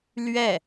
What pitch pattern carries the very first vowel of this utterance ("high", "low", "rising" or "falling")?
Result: falling